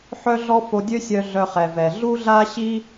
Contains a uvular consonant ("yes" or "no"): yes